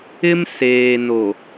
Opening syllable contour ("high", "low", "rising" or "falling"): high